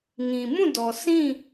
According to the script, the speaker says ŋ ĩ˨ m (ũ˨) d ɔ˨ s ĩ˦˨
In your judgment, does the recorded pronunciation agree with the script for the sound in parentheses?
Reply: no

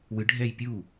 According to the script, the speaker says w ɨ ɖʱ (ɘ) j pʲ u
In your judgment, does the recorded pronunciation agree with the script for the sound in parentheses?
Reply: no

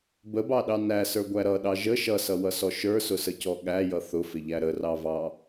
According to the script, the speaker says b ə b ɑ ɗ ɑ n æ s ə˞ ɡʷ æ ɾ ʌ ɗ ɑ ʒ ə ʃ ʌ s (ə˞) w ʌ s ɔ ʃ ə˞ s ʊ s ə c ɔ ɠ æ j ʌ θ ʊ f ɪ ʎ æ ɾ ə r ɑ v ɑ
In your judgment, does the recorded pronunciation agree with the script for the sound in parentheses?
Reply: no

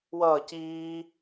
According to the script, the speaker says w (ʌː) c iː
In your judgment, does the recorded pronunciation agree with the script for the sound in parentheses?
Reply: yes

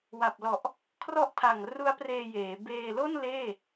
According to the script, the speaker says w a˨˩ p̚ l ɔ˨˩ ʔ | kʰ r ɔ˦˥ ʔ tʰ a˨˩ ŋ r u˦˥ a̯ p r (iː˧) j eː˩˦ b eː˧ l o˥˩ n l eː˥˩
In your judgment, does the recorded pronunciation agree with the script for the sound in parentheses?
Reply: no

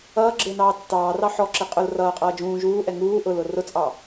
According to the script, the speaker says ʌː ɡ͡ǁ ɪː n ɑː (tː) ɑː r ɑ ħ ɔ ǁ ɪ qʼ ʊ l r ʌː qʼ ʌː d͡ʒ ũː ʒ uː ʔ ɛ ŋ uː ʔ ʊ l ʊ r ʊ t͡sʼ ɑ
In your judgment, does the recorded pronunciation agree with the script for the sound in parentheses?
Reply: yes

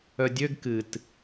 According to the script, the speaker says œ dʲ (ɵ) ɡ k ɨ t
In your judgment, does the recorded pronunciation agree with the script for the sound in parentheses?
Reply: no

